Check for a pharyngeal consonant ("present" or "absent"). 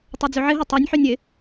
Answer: present